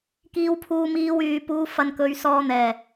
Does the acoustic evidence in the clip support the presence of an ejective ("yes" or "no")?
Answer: no